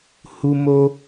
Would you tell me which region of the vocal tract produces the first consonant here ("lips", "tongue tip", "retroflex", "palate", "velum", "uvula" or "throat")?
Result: throat